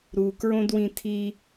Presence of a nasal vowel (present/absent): present